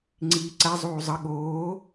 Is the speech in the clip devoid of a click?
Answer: no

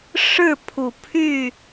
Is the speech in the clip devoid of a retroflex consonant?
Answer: no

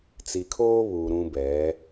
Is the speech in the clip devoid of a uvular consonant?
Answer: yes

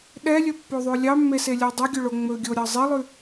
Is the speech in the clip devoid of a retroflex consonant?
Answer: no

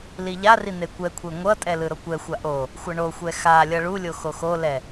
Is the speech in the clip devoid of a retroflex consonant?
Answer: no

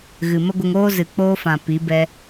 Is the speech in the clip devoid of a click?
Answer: yes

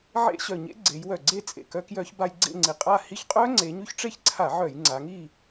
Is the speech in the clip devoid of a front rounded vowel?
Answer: no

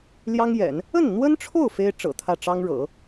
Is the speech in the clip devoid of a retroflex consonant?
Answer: no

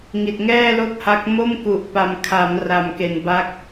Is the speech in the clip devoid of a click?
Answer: yes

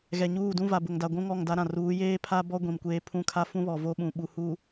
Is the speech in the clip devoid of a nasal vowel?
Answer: no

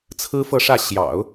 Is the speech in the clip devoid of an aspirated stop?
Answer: no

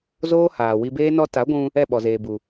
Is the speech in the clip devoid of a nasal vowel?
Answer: no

